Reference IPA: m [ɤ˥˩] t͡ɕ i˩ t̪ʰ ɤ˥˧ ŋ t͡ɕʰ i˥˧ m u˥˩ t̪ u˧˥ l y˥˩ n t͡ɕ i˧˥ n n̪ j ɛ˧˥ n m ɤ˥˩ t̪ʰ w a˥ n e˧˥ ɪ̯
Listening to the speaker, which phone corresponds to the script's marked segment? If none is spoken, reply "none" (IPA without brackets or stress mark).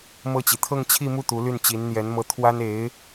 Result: ɤ˥˩